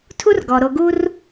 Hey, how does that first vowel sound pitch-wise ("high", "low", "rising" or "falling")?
high